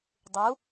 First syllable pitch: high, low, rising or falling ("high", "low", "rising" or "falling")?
rising